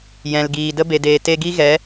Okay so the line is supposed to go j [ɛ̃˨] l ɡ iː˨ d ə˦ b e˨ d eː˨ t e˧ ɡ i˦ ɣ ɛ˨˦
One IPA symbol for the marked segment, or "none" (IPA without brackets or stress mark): ɛ̃˨